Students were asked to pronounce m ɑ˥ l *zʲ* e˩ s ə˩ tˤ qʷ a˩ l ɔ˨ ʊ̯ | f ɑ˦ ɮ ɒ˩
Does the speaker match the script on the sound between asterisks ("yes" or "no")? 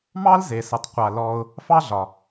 no